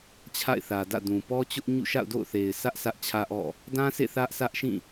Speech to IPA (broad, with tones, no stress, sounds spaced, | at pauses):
t͡ɕʰ a̰˦˨ ɪ̯ θ ä˨ d ä̰˦˨ d ũ˨ p ɔ˦ t͡ɕ ʊ˦ ʔ ɲ ṵ˦˨ ʃ a̰˦˨ ʊ̯ d o̰˦˨ ʊ̯ θ e˨ ɪ̯ s ä˦ ʔ s ä˦ ʔ t͡ɕʰ ä˦ ʔ ɔ̰˦˨ | d ã˦ sʰ ḛ˦˨ θ ä˦ ʔ sʰ ä˦ ʔ ʃ ĩ˦˨